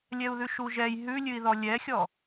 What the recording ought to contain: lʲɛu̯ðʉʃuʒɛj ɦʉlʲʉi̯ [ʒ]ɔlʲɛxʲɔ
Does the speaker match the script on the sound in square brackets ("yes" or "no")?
no